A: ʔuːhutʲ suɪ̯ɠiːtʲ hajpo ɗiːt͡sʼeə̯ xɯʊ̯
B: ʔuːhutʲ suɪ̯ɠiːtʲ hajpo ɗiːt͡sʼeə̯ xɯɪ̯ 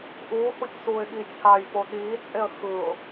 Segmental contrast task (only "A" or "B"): A